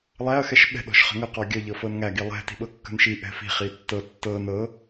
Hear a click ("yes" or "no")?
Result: no